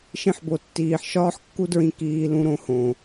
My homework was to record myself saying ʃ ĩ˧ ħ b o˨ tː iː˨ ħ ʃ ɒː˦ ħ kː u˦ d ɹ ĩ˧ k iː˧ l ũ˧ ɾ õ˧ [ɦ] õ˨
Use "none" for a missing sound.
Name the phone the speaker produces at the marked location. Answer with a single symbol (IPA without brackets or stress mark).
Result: h